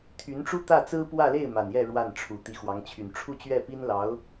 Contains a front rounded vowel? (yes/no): yes